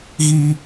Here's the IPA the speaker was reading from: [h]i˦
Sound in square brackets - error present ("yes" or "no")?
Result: yes